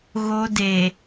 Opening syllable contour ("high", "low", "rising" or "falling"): high